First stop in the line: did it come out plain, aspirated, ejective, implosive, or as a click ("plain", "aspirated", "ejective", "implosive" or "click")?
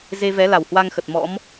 plain